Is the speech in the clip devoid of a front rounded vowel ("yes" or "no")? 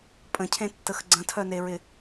no